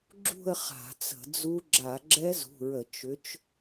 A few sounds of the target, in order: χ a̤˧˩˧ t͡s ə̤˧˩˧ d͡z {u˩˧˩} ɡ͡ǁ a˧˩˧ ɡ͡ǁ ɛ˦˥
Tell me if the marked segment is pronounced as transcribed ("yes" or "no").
no